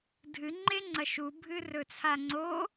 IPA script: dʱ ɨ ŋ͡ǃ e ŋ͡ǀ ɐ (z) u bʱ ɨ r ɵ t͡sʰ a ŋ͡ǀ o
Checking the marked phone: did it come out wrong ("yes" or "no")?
yes